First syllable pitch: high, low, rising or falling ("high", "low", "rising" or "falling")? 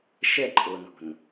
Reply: falling